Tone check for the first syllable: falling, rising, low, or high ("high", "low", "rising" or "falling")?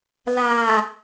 low